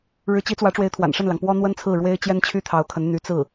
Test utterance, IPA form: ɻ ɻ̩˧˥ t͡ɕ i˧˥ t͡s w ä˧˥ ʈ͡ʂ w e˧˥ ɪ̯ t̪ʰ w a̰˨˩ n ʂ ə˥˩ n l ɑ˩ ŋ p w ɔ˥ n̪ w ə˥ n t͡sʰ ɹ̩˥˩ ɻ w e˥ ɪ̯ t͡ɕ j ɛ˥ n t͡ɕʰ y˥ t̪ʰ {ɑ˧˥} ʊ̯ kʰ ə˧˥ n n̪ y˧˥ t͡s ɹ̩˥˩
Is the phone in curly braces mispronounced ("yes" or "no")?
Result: no